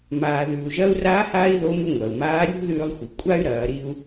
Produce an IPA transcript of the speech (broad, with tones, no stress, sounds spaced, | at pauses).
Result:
m aː˩ ð ʉː˩ u̯ ʒ ɐː˧ u̯ r a˧˥ h aː˥ i̯ ð o˧˥ m ʉ˧ ŋʷ ɐː˩ u̯ m aː˧˥ ɾʲ ṳ˥ ð ʉː˧ lˠ xʷ i˩ kʷʼ a˥ y̯ ɾ ɐː˩˧ ɾ i˧ u̯